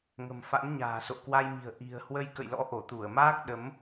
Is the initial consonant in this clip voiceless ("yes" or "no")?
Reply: no